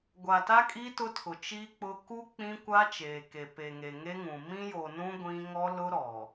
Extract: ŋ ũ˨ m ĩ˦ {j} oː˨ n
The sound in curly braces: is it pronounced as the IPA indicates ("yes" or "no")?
yes